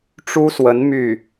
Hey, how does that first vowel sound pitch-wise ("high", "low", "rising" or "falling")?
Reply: high